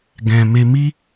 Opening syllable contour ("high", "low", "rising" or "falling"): low